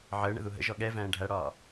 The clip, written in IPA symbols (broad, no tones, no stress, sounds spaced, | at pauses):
ʕ əː ɳ ə̰ ð u ɦ ə̰ ʒ ɔ ɠ ɛ v æ̃ː ɖʱ æ ɽ ɒː